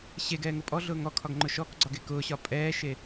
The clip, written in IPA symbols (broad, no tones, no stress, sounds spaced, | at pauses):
ɕ e ɡ ɛː ŋ ʊ pʼ ɔ ɮ ʊː ŋ ɔ kʰ ɒ ɡ ŋ͡ǃ ʊ ʃ ɔ k ɡ͡ǀ ɒ ɡ e k ʊː ɕ ɒ pʼ ɛː ʃ e